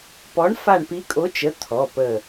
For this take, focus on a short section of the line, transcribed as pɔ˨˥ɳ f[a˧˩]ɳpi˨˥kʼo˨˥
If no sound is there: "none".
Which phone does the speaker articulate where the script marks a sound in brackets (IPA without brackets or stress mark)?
a˧˩